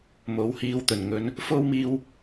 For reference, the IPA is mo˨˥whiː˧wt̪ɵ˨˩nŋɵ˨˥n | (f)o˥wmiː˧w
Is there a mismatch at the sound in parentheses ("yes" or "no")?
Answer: no